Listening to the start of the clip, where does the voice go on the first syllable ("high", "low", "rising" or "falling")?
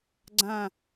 falling